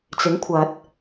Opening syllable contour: rising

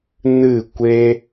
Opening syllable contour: falling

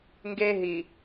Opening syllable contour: high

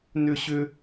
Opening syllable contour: high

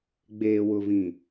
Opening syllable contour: low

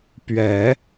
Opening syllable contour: low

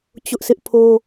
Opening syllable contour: high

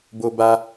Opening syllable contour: high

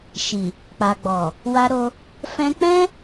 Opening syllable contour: low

